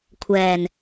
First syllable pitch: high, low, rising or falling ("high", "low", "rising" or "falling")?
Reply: low